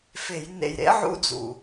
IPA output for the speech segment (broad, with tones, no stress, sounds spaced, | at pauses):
f e˧˩˧ j n ḛ˧˩ j ɾ ḛ˦˥ ʕ ṵ˧˥˧ d͡z ṵ˧˩